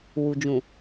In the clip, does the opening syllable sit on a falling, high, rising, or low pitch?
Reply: low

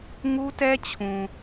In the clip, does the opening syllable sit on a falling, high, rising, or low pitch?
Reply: high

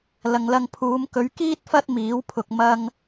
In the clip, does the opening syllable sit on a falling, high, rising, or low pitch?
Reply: low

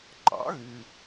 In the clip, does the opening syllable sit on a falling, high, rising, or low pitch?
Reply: rising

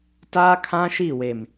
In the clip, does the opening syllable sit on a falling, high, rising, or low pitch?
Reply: high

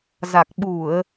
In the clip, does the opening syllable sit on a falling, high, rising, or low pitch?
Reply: low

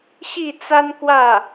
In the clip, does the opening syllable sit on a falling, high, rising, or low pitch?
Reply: falling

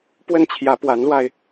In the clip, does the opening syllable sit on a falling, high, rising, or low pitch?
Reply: falling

